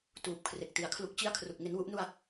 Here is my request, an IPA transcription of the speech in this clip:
t uː˨˩ p̚ kʰ r e˨˩ k̚ t i˩˦ a̯ kʰ l u˦˥ k̚ t͡ɕ i˥˩ a̯ kʰ r u˨˩ k̚ ŋ e˦˥ n w u˦˥ ʔ n u˥˩ a̯

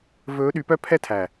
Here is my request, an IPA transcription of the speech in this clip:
v ɵː˨˦ ɗ y˨˦ p œ˦ pʰ ɛː˦ tʰ æ˨

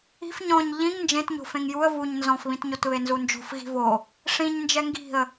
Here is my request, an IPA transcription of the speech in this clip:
i̤ f ɲ ɔ̃ ɲ ʎ ĩ ŋ n d͡ʒ ẽ t ɲ o̤ f ẽ ŋ j u ə̯ v u ɲ n z ɔ̃ f β ĩ t ɲ o t β e n z u n d͡ʒ o̤ f ɣ i̤ v o | ʂ ĩ ɲ n d͡ʒ ɛ ŋ ɡ i̤ ə̯

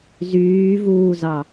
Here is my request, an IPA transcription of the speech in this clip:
z yː v uː z ɑ

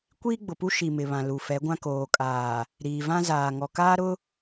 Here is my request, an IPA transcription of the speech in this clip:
kʷ iː˦ ɡ͡b ʊ˨ p u˦ ʃ i˨ m ɪ˨ β ã˨ l u˨ f ɛ˨˦ ɡʷ ã˦ k oː˨ kʼ aː˨ | ɾ iː˨ v ã˦ z aː˨ ŋ ɔ˨ k aː˦ ɾ ʊ˦

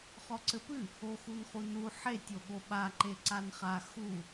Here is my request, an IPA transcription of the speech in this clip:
χ ɔ ǀ ɘ p ɨ | o x u n χ u n u ħ e tʲ o ɠ o ɓ a ǃ e ǀ a n χ a x u

